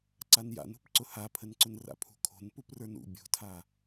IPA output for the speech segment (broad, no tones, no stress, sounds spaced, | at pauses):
ǀ a n j a̰ n ṳ p ǀ ʊ h a pʰ ə n ǀ ʊ n r a̰ pʰ ṳ kʰ o̤ n p u p r ə˞ n ṵ bʲ o̤ tʰ a